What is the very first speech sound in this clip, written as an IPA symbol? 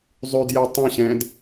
zˤ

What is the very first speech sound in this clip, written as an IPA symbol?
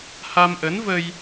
h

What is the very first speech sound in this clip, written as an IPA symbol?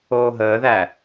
oː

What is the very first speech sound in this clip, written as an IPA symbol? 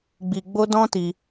ɡ͡b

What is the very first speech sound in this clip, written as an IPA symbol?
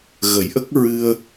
ɣ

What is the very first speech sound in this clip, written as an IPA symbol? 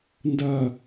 n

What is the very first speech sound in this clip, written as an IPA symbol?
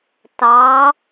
t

